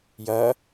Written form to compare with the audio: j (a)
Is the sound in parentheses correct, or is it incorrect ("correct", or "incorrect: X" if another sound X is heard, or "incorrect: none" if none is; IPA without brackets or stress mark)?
incorrect: ɐ